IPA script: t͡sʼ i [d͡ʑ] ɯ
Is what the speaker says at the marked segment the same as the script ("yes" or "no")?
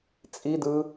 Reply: no